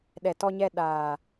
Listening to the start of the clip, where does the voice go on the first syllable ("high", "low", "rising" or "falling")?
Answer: low